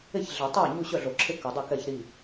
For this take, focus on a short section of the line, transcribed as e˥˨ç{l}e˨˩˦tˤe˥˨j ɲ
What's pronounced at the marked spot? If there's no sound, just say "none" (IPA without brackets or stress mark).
ɮ